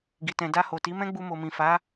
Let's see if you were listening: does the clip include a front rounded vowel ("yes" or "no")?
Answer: no